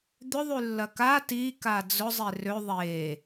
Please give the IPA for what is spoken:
d̪ʏðˤylːɐ ka tika d͡zʊzˤe rø ðˤe

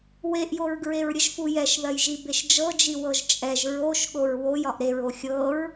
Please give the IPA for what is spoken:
weʔjoɹɡɹeɹɾʲəʒ fujɛʃðɜjʒi beʃd͡ʒɤd͡ʒi wɤʒt͡ʃʼɛʒ ɹoʃ ɠoɹwoj ɒʔɾeɹo xʲɤɹ

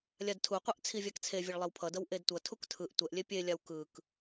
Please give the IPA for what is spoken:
lʲadtʰuqʷɛʔ t͡sʰivʲakt͡sʰevʲɛɭ lˠɛwpʰʌdʌw ʔedtʷʌtʰuk tʰɯʔ tʷɛʔlʲe pʲelʲaw kɯk

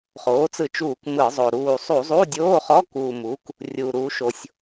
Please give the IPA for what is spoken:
χoː˩˥t͡sɯ˧˩˧t͡ʃuː˧˩˧k mɯ˧˩˧zˤo˨˩ ɾuː˨˩sˤu˧˩˧zˤu˧˥˧ dʲoː˧˥˧χɔ˧˥˧kuː˨˩mu˩˥k | rʲuː˨˩ɾuː˩˥ʃo˨˩sʲ

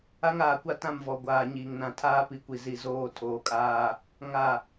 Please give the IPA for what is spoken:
a˦ŋaː˨kʷa˦ tã˦˨mvɔ˨ɡʷaː˨ ɲiː˨ŋnã˨ tʰaː˦pi˨kʷi˨ zi˨ zoː˦˨ tʰoː˨kʼaː˦ | ŋa˦˨

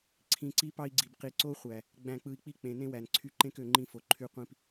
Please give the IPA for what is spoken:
ǀʰĩ˨ǀi˦pɑ˦i̯ɡ͡ǀi˨b qi˨ǀo˦ χʷæ˨ | ɡ͡bæ̃˨k͡pɯ˨i̯k͡pi˦k͡pẽ˨ nẽ˦wæ˨nǀʰy˦ ǃẽ˦kø˨ ŋ͡ǃĩ˦fo˨ ǃʰy˦qʷĩ˦p

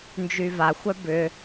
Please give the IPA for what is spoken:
nd͡ʒyvaxʷœ bʏ

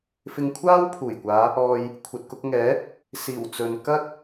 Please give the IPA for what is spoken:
fɪ˧ŋkʷʰaː˥wpʰuː˨˩jkʷaː˨˧ | ɔː˨j | kʷʰɐ˨t̚kʊ˧k̚ ŋɛː˨˥ | siː˨˩w t͡sɵ˨n kɐ˥t̚

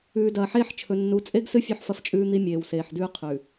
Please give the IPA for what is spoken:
ʉː˨dɐː˨ħeː˦ħ t͡ʃʰɵ˨nːu˨˦t͡sʼe˦ɡsɨ˦ fʲʉ˦ħfɐ˦ft͡ʃʼʉː˦n̪i˦ mʲeː˨wseː˨ħdʉː˦ qʰʉ˨

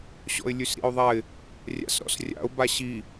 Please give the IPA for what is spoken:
ɕɔ̰ɪ̯lʲʉsɾḭʊ̯ðˤaɪ̯ | rʲa̰sɾɔ̰srʲa̰ʊ̯ baɕi

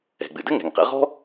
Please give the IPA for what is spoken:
ɛ̤˩ɡ͡bɨ˩ dɘ˥ ŋɛ̤˩ŋqɛ̰˧ʁɔ̤˥

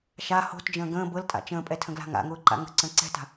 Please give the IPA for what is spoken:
ʃa ho̤td͡ʒə̃ː ɡə̃ː bɤltʼa̰ t͡ʃə̃ːpʼɛtʰə̃ɡla̤ ŋa̰ŋʊːǃa̰ ŋə̤ǀə̃ ǀɛ̤ta̤

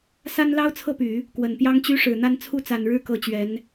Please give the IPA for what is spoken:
sa˥nlɑ˥ʊ̯t͡sʰɤ˥˩py˨˩˦ | kwə˨˩npjɑ˥ŋt͡ɕy˥ʂɻ̩˨˩ n̪a˥˧nt͡sʰu˥˩t͡sa˨˩nɻɻ̩˥˩ kɤ˥t͡ɕɥɛ˧˥n

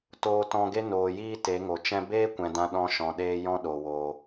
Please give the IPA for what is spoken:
toː˧tɔ̃˧ɡe˦ noː˨jiː˧ te˨˦ŋo˨ t͡ʃɛ̃˧beː˦kʷɛ̃˨ dã˧ɗɔ̃˧ ʃɔ̃˨ɗeː˧ jɔ̃˦ɗo˨woː˨

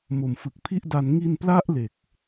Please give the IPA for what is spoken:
mo˨˩mfɯ˨˩k̚ pʰi˥˩ʔda˧n ŋi˧npla˦˥ʔle˨˩k̚

